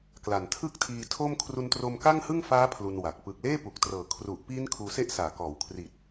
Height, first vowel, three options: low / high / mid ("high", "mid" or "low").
low